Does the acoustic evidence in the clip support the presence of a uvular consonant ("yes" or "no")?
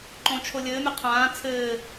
yes